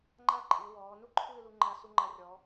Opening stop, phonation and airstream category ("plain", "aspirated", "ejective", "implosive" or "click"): click